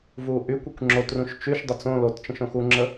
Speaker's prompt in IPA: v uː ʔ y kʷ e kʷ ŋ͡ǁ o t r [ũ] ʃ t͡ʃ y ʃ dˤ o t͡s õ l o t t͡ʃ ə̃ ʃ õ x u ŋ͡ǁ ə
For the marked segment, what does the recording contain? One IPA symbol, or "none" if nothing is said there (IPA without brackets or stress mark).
ũ